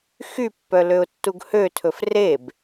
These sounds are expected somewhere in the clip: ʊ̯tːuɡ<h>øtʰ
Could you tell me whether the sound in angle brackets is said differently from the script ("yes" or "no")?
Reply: no